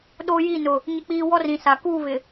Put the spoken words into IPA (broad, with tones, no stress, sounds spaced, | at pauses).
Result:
ɗ o˦ j i˦˨ n ʊ˨ | ɲ ɪ˦ k͡p iː˦ w ɔ˦ r ĩ˨ s a˨ k uː˦˨ β ɪ˨